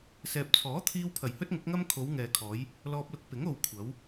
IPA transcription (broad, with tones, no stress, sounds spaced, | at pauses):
s ɛː˨ p̚ t͡sʰ ɔː˨˥ t̪ʰ iː˧ w pʰ ɐ˨˩ j h ɵ˥ t̚ ŋ ʊ˨˥ k̚ ŋ ɐ˥ m kʰ o˨˧ w ŋ ɛː˨ kʰ ɔː˨˧ j | l ɔː˧ p̚ l ʊ˧ k̚ p ɪ˨˥ ŋ o˨ w kʷʰ ɐ˨˧ w